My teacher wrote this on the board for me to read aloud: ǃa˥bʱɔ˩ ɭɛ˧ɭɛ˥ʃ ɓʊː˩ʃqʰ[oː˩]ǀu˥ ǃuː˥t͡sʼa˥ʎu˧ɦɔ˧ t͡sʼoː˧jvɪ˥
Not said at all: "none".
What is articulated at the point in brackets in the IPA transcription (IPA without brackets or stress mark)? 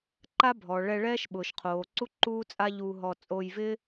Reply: oː˩